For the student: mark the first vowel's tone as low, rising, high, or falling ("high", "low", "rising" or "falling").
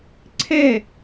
falling